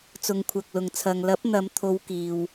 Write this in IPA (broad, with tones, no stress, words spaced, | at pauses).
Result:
t͡sʊ˨˧ŋkʷʰɐ˨k̚lʊ˨ŋ t͡sʰɐ˨ŋlɐ˨˥p̚n̪ɐ˨˧mt̪ʰo˨˧w kiː˧w